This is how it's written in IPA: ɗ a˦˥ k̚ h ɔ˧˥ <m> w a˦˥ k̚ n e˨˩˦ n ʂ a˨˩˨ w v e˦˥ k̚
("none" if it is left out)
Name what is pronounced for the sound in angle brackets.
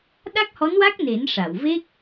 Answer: n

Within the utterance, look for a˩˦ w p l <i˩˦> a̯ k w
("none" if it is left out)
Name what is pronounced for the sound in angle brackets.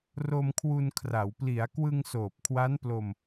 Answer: i˩˦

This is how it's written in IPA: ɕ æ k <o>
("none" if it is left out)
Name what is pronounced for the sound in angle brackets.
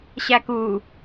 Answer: u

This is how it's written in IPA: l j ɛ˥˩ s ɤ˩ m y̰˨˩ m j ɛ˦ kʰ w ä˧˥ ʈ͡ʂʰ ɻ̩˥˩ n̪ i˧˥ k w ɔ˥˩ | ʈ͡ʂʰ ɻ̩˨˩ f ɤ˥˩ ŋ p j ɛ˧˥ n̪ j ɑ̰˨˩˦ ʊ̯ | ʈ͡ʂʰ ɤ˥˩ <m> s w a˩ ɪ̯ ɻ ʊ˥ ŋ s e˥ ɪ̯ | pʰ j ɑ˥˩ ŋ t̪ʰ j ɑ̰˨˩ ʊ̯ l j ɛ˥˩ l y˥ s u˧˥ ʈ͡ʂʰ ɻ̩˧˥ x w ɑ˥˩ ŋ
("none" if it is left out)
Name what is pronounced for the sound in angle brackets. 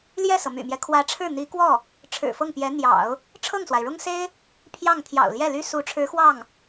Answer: ŋ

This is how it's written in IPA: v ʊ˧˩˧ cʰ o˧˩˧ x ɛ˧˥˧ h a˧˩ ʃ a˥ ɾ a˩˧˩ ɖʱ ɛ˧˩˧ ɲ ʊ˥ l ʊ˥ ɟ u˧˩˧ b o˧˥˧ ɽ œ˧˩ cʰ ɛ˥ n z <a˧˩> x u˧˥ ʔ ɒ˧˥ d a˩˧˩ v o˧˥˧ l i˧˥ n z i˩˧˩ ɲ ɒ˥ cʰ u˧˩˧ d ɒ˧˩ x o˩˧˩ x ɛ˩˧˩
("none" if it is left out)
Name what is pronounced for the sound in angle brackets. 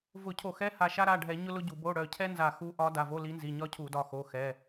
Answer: a˧˩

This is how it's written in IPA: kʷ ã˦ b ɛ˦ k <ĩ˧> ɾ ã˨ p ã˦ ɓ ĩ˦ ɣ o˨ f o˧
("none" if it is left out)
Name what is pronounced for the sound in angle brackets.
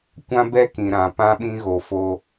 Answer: ĩ˨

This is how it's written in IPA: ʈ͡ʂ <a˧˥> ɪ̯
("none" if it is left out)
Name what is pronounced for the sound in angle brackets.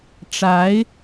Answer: a˧˥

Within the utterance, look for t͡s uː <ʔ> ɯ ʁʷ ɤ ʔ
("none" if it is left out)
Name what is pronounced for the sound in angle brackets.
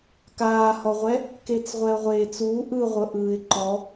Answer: ʔ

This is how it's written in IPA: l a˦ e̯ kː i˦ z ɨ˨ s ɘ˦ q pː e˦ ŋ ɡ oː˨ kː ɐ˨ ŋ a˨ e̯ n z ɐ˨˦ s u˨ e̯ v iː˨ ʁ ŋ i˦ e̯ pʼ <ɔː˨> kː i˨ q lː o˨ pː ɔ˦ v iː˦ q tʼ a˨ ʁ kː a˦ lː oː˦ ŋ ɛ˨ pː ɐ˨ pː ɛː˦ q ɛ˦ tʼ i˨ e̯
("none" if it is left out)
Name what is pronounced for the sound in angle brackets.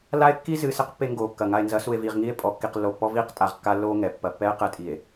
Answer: ɔ˨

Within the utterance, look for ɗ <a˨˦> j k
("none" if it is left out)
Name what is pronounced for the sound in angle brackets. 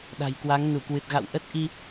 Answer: a̤˨˩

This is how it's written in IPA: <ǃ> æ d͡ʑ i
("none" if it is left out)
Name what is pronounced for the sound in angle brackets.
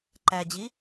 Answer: ǃ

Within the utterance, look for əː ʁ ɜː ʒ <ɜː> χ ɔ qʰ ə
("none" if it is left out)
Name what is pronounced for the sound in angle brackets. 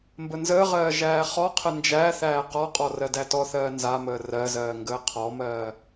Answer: æː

